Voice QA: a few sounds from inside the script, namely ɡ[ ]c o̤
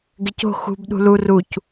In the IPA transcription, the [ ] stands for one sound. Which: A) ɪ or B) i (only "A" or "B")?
A